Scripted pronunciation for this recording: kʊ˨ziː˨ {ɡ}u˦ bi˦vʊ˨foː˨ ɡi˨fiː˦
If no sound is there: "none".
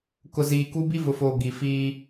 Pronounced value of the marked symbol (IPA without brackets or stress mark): k